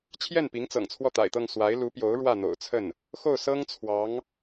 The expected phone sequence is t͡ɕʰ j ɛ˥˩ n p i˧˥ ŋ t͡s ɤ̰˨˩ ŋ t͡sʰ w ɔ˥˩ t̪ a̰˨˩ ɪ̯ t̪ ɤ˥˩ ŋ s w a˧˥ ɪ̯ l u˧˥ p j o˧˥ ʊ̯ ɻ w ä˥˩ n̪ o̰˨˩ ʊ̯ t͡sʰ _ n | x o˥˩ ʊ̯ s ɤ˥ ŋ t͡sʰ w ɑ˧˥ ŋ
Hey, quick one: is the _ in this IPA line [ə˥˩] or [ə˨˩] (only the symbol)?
ə˥˩